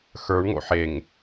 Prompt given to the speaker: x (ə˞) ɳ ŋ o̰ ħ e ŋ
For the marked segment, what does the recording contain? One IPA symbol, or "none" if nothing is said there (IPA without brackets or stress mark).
ə˞